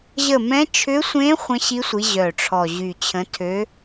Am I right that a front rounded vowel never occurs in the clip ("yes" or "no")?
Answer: no